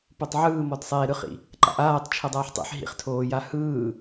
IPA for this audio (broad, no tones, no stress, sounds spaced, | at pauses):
p o tˤ ʕ ɯː m ɔ d sˤ eː ɾ ɯ χ ḭ | ǃ a̰ ʔ aː tˤ t͡ʃʰ ɤ dˤ aː ħ tˤ ḭ ħ ɦ ḭ χ tʰ oː j a h ɯː